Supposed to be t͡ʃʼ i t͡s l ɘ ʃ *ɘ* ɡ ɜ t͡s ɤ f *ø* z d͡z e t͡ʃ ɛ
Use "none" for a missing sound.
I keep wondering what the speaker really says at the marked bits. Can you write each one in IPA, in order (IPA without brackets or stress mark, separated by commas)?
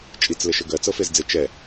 ɘ, e